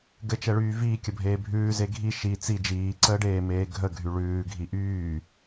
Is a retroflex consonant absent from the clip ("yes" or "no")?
no